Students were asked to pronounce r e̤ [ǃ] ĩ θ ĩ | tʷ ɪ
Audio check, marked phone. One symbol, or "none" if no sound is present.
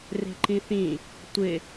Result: ǃ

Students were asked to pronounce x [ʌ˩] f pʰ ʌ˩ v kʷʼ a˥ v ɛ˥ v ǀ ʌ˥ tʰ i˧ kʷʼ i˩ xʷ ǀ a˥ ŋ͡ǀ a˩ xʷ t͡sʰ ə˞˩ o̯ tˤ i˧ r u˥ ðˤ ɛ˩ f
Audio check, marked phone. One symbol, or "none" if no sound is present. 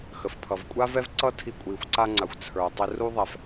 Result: ə˩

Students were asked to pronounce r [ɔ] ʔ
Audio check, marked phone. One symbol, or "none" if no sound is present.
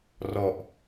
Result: ɔ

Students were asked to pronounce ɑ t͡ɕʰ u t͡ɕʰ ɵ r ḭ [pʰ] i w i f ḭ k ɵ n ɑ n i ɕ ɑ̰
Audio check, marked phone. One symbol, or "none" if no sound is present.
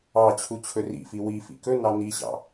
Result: f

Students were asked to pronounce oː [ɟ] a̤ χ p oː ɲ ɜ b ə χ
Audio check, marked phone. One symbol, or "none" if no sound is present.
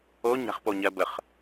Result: ɲ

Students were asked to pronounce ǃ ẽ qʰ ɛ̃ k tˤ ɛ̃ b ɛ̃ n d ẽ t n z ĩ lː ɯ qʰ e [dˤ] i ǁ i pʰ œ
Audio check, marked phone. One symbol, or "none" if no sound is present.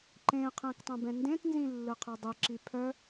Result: dˤ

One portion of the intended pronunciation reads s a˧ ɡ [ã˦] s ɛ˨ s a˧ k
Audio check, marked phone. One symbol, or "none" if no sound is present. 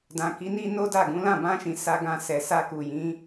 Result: ã˧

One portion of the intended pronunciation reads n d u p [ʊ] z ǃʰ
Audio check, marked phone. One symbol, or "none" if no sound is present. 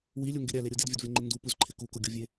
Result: ʊ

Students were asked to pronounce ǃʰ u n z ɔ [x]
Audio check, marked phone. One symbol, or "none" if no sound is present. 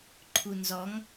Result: ŋ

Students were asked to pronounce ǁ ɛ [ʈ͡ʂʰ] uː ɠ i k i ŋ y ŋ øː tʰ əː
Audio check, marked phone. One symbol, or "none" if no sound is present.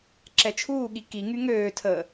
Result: t͡ʃʰ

